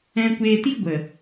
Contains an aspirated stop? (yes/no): no